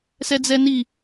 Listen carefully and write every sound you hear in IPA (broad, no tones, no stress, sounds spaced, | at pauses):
s ɛ d͡z ɛ n i